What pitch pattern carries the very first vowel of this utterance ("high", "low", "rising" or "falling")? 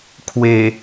low